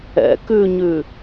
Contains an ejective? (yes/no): no